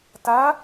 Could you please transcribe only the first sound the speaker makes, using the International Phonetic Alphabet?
t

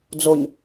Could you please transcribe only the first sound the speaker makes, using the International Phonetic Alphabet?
d͡z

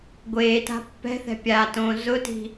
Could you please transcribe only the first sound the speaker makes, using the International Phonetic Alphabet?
ɡʷ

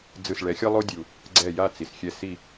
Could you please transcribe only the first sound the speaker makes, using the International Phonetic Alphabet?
d͡z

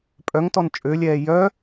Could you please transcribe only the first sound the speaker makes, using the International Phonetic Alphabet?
pʼ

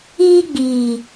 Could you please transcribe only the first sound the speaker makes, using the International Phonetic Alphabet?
iː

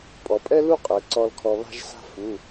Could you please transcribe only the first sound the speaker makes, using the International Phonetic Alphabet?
pʼ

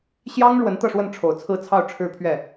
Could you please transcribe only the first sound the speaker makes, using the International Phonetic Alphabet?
ɕ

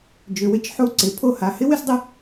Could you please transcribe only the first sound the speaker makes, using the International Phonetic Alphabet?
d͡ʒ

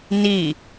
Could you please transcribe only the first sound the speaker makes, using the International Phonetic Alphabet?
n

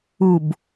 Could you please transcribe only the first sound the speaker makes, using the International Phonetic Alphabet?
u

